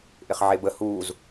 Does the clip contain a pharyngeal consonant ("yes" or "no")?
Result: yes